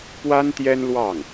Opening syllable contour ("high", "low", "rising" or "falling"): high